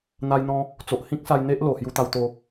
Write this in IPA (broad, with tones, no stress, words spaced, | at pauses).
n̪a˧jn̪ɔ̃˧ | t͡so˨ʔhĩ˦k̚sa˧j n̪e˦ʔ lo˨˩hju˧t̪a˧wt̪o˧